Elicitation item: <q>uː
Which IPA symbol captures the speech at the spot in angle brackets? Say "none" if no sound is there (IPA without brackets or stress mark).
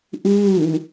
ʔ